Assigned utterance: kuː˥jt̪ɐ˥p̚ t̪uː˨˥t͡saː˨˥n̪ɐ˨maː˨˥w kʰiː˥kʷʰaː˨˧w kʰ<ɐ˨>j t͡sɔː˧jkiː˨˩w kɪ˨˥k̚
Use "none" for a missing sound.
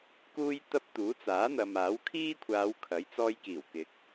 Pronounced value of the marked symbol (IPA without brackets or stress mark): ɐ˨˥